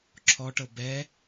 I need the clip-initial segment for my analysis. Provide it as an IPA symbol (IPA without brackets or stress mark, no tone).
ǁʰ